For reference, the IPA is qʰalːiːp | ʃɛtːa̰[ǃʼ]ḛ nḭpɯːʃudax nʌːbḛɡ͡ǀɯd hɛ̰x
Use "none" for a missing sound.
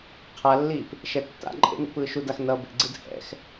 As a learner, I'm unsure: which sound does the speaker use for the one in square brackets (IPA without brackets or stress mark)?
ǃʼ